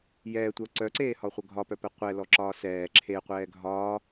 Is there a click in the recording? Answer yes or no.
yes